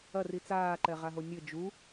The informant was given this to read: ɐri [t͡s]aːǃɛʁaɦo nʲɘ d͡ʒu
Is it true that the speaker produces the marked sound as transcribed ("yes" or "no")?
yes